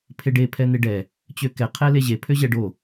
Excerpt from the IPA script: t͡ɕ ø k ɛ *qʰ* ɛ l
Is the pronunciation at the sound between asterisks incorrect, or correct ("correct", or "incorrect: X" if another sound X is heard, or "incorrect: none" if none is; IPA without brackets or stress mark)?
correct